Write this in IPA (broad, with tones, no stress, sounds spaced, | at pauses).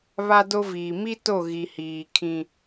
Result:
β a˦ d o˦ v iː˨ m i˦ t o˦˨ ɣ i˨ h iː˨ kʰ ĩ˦